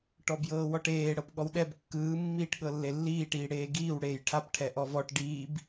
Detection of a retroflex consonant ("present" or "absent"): present